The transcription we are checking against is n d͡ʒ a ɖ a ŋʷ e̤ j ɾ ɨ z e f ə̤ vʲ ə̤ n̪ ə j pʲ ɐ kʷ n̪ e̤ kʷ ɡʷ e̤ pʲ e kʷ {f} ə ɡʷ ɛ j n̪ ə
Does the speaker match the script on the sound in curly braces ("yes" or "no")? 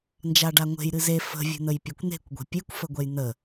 yes